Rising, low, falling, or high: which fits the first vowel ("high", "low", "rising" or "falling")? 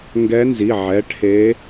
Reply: rising